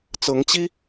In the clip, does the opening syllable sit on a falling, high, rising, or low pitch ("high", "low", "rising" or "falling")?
rising